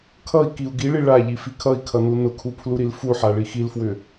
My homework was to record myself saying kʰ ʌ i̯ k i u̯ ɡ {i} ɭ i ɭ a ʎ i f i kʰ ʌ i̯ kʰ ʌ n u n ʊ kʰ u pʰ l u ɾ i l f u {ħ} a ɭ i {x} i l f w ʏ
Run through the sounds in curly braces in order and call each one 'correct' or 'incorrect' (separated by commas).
correct, correct, correct